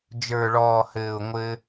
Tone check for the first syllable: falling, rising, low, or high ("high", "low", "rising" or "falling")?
low